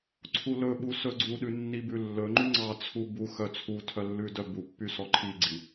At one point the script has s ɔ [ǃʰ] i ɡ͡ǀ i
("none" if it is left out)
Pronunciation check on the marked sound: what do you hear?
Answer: ǃʰ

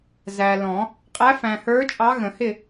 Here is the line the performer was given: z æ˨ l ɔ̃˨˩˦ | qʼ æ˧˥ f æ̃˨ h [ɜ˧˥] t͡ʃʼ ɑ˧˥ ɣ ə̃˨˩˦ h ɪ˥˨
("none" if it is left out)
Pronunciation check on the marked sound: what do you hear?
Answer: ə˞˧˥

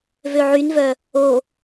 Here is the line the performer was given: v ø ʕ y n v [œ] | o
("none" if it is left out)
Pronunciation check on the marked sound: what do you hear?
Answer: œ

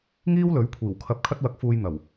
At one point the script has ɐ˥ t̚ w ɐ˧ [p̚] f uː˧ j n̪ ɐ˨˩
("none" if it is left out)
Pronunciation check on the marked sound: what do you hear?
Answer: k̚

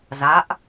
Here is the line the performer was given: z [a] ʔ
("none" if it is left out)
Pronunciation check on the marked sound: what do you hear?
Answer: a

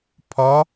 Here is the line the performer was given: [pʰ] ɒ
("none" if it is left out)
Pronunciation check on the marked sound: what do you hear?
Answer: pʰ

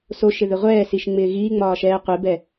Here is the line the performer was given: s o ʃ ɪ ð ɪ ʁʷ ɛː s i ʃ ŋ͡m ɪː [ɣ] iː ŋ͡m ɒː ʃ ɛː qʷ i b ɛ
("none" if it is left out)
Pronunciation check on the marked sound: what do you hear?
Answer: ɣ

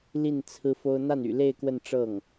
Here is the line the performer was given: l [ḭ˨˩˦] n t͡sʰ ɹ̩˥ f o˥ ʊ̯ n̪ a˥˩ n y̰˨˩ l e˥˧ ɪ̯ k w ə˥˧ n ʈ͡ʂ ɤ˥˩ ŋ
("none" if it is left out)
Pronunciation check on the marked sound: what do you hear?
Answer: i˥˩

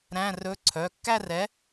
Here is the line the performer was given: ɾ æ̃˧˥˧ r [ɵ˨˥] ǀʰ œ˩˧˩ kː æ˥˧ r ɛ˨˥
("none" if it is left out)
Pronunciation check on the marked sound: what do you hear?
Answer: ɵ˧˥˧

